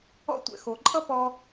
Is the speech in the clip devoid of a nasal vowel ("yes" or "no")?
yes